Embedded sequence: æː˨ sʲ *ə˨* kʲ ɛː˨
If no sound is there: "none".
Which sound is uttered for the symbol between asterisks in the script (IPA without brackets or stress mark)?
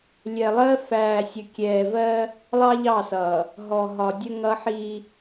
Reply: ə˨